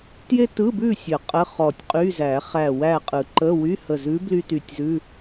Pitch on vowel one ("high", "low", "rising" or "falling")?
high